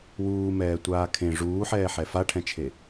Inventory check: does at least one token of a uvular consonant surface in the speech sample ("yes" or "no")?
no